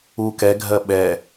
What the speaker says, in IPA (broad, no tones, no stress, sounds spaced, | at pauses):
u k ɛ ɡʱ ɜ ɓ ɛ